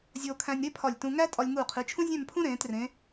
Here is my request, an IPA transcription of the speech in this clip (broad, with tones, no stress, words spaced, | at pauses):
zʲoː˧kʰæ̃˧nʲɾe˥ pʰɒ˧˩lʲtũ˧ ŋæ˥ tʼɒ˧lʲŋuː˧˩ qʰi˩˧ t͡ʃʰũ˥ zʲæ̃˥˧mpʰũ˥ ɾẽː˩˧trẽ˩˧